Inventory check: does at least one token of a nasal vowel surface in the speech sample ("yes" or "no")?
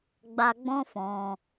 yes